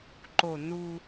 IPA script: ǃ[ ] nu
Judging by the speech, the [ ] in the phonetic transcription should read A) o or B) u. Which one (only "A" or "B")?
A